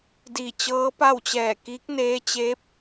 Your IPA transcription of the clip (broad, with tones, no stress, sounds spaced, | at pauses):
d iː˧˩ t͡ɕ ɤː˧˥ p a˥˨ w t͡ɕ ɛː˧˩ k iː˧˥ k̚ n eː˧˥ t͡ɕ eː˧˥ p̚